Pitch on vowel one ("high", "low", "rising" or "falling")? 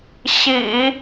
low